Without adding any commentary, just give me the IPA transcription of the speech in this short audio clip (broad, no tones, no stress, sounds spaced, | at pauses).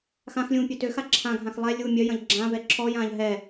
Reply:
x ã x lʲ ũː pʲ ø t ø x a ǁʰ ã ɡʱ ã x lˠ ɛ lʲ u mʲ œ j ɐ̃ ʎ ɡ͡ǁ ã v ɛ ǁʰ ɔ j ãː ʎ ɦ ɛ